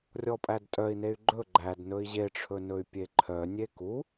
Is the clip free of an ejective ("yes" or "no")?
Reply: no